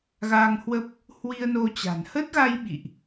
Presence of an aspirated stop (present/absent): absent